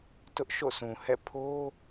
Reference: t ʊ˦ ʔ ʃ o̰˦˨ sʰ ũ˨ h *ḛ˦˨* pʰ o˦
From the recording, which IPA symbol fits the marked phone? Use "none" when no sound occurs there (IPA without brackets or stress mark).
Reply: ɛ̰˦˨